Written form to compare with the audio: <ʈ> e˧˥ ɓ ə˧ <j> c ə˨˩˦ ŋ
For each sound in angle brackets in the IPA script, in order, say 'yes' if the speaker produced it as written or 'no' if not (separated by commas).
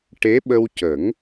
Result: yes, no